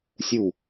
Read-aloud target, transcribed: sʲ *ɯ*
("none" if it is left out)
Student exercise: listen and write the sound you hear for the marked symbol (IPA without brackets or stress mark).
u